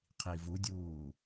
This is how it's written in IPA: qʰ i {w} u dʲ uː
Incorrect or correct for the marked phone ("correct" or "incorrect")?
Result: incorrect